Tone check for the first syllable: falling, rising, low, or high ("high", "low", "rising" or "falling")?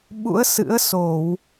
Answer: rising